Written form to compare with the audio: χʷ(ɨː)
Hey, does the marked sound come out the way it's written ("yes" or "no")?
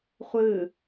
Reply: yes